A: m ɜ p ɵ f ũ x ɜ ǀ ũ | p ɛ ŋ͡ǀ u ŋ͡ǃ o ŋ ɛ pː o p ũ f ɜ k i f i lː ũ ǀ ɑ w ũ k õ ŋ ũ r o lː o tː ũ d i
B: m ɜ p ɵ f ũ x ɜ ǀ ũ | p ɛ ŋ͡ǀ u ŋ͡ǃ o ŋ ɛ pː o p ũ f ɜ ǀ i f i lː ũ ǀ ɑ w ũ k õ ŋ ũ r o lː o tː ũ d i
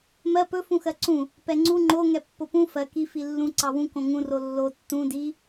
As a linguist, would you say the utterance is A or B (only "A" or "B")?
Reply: A